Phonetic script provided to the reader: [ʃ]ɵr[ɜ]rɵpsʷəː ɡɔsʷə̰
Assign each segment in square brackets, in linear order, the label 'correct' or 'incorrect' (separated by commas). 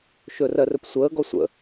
correct, correct